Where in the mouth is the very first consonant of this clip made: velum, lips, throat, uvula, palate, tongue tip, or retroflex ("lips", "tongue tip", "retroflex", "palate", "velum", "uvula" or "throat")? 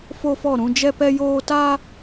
lips